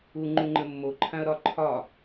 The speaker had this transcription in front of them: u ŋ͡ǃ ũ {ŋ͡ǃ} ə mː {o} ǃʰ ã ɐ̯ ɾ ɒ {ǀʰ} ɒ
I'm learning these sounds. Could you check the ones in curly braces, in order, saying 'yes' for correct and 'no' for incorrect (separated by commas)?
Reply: yes, yes, no